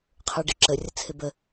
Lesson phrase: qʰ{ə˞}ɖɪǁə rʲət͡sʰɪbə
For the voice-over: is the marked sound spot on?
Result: yes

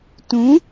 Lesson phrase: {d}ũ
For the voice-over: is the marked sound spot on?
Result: no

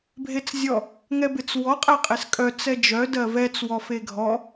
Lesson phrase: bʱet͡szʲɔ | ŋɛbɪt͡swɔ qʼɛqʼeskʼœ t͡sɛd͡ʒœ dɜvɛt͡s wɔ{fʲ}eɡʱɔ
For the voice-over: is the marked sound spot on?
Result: no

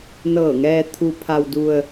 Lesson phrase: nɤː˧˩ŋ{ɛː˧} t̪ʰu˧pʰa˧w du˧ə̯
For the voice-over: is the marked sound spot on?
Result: yes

